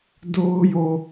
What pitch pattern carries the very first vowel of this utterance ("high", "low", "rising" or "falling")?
high